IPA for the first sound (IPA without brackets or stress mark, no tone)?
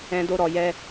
ɛ̃